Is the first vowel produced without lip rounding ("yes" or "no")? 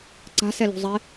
yes